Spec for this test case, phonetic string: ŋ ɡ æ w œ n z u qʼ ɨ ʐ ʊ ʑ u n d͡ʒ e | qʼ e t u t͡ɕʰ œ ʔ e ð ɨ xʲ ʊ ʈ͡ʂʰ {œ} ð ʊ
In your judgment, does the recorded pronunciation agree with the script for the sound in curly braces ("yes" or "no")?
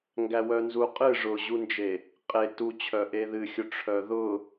yes